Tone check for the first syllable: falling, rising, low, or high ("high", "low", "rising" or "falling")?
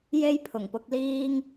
high